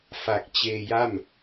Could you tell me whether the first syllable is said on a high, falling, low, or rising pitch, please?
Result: low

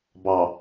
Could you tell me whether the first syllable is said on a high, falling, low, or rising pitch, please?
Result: low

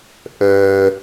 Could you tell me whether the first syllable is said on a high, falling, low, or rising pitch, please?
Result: low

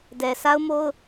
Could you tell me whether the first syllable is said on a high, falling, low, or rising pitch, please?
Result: low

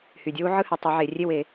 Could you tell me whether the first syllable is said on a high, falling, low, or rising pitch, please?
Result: low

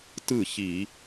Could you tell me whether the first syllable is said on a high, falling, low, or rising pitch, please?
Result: falling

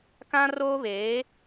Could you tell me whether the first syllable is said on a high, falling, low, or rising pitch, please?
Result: high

